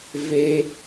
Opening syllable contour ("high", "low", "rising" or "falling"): high